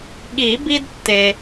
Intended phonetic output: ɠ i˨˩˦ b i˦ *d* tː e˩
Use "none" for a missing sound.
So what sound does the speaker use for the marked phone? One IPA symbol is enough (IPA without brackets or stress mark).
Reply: d